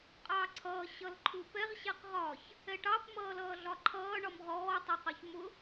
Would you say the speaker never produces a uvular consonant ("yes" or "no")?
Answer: no